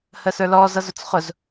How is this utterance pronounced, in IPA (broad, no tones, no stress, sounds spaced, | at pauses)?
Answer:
h ə s ə˞ l ɔ z ʌ z ʊ t͡s χ ʊ z